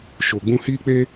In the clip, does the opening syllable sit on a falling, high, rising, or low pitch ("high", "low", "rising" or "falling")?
low